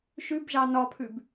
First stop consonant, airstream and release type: plain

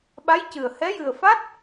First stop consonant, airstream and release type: implosive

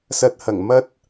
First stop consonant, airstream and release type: plain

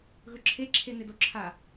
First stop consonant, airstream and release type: click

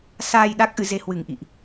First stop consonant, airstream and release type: implosive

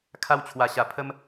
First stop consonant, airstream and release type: aspirated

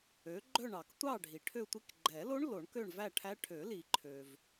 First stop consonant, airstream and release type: click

